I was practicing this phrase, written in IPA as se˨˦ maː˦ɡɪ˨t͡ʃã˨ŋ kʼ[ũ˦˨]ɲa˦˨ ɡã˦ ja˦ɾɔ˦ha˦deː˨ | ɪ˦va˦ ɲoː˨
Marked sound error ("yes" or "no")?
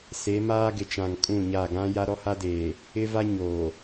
no